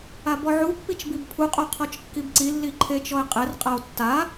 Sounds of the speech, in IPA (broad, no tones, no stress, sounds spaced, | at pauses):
a b ɔ ʕ u pː i t͡ʃ b i b pʰ u qʼ o qʰ ɔ t͡ʃ kː i b ǀ i lː i ǃʰ e t͡ʃ ɔ e̯ qʼ ɛ r qʼ a o̯ tː a